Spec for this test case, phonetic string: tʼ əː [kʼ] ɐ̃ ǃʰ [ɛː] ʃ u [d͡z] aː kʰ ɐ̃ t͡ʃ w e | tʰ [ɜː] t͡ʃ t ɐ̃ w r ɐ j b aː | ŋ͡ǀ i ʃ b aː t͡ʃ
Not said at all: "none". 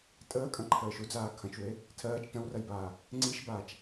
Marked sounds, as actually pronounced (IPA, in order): kʼ, əː, d͡z, ɜː

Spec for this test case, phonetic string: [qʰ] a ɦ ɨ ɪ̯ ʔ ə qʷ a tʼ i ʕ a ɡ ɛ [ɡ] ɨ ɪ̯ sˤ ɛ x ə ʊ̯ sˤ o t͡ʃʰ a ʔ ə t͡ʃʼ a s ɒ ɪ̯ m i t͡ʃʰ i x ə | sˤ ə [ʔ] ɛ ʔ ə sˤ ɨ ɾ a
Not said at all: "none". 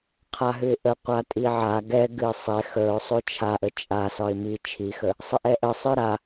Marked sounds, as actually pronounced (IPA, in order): qʰ, ɡ, ʔ

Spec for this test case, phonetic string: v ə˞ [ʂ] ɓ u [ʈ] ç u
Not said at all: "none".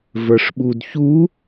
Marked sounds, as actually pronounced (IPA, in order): ʂ, d

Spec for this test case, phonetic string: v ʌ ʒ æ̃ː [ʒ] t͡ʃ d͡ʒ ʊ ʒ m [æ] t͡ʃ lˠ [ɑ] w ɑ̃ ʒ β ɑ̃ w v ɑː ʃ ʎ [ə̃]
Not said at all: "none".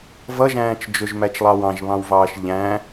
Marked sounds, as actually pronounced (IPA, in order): none, æ, ɑ, æ̃

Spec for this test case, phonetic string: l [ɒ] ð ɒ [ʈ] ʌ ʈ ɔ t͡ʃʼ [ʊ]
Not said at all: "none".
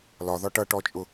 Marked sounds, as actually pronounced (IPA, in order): ɒ, ʈ, ʊ

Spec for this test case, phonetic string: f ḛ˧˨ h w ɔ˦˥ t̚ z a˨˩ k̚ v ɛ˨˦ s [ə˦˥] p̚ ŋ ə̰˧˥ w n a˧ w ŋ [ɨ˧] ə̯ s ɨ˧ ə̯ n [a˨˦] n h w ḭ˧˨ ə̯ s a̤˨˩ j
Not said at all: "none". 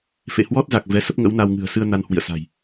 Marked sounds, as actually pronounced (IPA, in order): ə˦˥, ɨ̤˨˩, a˧

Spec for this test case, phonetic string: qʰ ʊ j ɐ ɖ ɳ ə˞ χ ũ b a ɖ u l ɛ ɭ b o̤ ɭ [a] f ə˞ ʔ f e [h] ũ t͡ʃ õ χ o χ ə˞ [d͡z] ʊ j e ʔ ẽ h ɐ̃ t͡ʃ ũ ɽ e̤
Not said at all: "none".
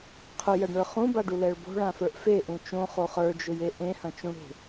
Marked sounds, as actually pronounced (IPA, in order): ã, ʔ, d͡ʒ

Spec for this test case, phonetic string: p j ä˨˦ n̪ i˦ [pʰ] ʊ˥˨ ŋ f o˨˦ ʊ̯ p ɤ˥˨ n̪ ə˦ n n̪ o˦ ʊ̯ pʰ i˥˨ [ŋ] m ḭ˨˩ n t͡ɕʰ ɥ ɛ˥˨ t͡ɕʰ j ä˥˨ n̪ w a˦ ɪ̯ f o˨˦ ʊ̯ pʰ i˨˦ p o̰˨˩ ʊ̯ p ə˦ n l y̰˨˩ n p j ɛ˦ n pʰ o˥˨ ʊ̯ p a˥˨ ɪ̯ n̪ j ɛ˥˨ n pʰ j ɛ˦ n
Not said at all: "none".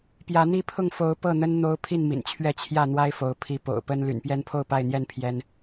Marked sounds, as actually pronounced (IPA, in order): pʰ, n

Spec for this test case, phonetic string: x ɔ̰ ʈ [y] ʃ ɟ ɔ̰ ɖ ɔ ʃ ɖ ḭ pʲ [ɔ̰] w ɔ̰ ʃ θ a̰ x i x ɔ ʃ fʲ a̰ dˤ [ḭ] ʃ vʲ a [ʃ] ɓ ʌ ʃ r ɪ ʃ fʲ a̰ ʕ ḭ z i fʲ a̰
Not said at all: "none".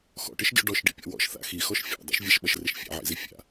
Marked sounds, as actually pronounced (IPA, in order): ɪ, ɔ̰, ḭ, ʃ

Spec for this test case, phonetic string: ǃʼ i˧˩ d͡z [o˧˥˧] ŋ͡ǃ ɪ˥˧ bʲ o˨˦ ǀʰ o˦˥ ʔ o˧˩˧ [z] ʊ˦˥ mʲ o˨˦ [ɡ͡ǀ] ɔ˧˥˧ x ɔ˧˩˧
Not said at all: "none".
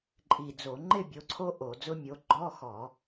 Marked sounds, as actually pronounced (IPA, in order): o˧˩˧, d͡z, ɡ͡ǃ

